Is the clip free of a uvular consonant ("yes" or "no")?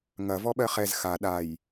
no